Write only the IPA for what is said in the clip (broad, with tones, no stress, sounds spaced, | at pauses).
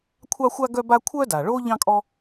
kʷʰ ɑ˥ xʷ a˥ ɡ œ˥ b a˥ kʷʰ œ˥ d a˩ ɭ o˥ ʎ ɑ̃˥ kʼ ɔ˥